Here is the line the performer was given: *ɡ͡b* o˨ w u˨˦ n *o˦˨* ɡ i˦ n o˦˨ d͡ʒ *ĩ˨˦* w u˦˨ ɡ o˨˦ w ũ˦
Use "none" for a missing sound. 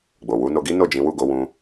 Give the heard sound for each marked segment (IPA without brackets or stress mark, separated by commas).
ɡ͡b, o˧, ĩ˨˦